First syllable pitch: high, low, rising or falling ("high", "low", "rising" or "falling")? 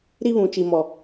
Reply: high